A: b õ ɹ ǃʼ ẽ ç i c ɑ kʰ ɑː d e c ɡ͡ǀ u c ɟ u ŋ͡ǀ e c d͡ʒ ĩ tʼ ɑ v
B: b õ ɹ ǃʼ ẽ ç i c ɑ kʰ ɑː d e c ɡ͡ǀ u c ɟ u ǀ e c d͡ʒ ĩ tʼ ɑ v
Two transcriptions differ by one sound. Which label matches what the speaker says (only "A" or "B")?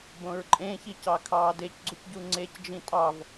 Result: A